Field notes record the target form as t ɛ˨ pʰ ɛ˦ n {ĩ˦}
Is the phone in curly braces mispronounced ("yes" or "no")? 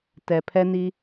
yes